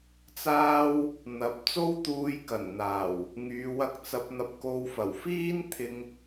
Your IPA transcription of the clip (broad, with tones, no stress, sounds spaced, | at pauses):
t͡s aː˥ w | n̪ ɐ˨˥ p̚ t͡s o˥ w t̪ uː˧ j k ɐ˨˩ n n̪ aː˨˩ w | ŋ yː˨˧ w ɐ˧ k̚ t͡s ɐ˨˥ p̚ n̪ ɐ˧ p̚ k o˧ w f ɐ˨˩ w f iː˥ n t̪ʰ ɪ˧ ŋ